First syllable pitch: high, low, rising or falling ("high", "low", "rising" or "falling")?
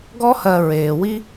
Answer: high